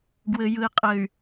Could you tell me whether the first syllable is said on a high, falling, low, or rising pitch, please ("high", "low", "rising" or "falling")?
low